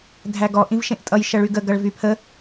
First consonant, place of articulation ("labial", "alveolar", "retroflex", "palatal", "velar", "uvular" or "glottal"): alveolar